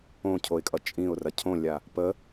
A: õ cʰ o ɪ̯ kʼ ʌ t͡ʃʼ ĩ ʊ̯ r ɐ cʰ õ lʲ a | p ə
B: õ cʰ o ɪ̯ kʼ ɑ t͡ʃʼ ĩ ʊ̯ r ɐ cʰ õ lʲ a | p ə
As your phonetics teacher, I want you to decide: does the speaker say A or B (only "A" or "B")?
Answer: A